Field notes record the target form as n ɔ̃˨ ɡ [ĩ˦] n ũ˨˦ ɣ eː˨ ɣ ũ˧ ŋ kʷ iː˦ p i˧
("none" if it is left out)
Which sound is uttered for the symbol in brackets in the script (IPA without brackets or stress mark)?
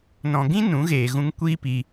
ĩ˦